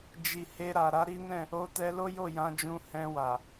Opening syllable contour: low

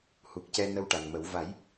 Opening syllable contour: low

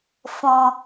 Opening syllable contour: low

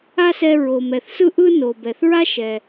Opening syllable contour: high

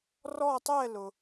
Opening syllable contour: falling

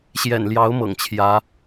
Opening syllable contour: low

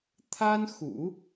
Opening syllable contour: high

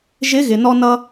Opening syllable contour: rising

